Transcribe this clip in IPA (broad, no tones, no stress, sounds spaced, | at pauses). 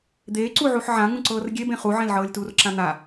d̪ eː ǀ u ʕ u ħ ʕ ã ŋ ũ ǀ ɤː r ɡʲ e b ẽ χ u ʕ ẽ l ʕ ɤː lʲ t uː r ǁ ã n̪ a